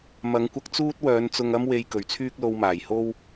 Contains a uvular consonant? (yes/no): no